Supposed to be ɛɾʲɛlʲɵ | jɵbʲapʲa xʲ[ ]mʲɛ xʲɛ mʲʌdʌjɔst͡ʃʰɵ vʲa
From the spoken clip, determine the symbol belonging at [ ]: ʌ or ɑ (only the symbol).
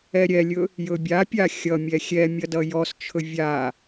ʌ